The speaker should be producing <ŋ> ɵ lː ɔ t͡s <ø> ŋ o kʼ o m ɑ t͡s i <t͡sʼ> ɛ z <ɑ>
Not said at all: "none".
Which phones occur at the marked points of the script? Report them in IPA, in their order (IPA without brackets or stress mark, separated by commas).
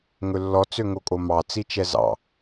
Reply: ŋ, ø, t͡ʃ, ɑ̰